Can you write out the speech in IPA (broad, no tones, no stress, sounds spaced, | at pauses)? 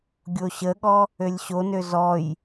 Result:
ɡʲ o ɕ ə ɠ ɔ | ø lʲ ɕ o n ø z ɔ j